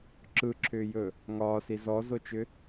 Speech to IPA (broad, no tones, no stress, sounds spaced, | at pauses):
ǁ ɯ ǁʰ ʏː j ɵ | ŋ ɒː s i z ɔ z o t͡ʃ ʏ